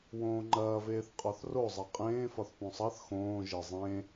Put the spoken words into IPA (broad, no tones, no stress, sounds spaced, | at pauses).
w õː ŋ͡ǃ ɐː v eː θ qʼ ɒ θ r o zˤ ɛ qʼ ẽː f ɒ θ p õ sˤ ɑ θ x õː ʒ e zˤ ẽ